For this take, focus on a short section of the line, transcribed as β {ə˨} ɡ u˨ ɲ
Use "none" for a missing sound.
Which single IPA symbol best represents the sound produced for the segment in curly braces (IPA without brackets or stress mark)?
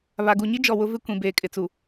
a˨